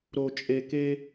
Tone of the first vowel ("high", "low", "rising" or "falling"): low